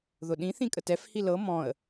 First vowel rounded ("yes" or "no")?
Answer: yes